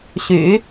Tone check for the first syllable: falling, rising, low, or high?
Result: low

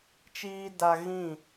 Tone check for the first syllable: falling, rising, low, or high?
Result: high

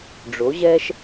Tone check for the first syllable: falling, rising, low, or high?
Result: rising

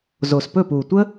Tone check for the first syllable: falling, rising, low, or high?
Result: low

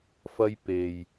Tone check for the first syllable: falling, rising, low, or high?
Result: high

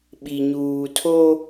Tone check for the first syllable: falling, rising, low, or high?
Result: low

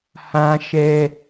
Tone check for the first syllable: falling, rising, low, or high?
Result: high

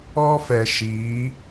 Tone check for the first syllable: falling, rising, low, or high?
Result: high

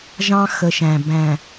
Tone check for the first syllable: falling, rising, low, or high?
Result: high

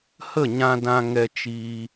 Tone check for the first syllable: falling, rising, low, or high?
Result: falling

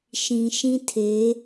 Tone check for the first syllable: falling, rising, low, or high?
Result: low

